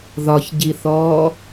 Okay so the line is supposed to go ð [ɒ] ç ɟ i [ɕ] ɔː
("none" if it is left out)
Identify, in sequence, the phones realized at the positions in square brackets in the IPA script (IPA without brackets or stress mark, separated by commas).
ɒ, θ